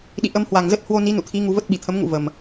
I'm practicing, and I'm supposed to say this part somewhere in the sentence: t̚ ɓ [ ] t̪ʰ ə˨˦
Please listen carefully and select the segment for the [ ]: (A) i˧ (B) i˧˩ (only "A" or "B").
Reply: B